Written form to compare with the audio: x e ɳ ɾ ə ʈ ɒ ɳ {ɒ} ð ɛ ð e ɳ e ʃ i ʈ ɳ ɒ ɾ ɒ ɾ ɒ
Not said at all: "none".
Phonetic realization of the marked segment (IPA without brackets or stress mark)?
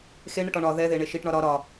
ɒ